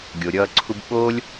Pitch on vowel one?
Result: low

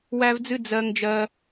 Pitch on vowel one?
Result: high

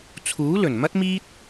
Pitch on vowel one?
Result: rising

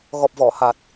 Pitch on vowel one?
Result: low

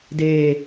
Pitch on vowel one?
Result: low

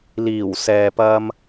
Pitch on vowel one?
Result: low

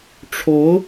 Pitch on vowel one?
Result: rising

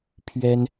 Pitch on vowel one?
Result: high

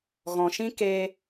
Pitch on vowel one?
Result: low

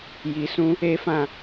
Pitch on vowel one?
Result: low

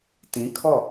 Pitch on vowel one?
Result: rising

